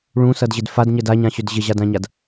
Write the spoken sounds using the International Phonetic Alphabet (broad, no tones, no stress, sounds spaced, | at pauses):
ɭ ũ s ʌ d ʑ ɪ d f a d ɲ ə d a ɲ ã ɕ ʏ d ʑ ɪ ʑ a d ã ɲ a d